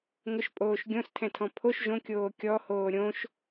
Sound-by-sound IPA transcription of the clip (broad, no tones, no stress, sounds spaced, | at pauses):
ŋ ʊ ʃ pʼ oː ʃ ɡʲ õ s tʰ ɛ̃ tʰ ɔ̃ pʰ o ʃ ʒ õ kʲ oː kʲ ɔ h oː ɾʲ õ ʃ